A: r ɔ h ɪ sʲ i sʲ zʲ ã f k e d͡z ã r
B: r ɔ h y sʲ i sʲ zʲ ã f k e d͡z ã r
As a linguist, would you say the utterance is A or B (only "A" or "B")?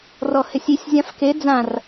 A